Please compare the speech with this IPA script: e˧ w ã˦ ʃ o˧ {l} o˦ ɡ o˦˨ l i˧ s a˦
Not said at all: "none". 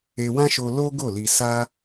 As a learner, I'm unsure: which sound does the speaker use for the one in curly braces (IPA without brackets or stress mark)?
l